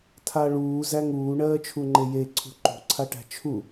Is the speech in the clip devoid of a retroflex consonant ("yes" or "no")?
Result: no